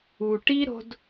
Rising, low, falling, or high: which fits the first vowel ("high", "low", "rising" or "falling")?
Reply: low